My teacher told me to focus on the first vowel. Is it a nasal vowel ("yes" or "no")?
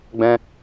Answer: yes